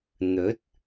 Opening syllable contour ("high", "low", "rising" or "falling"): rising